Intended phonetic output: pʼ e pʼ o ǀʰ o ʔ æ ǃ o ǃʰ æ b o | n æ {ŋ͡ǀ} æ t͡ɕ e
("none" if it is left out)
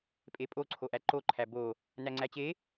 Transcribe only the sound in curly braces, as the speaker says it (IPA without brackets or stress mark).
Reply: ŋ͡ǀ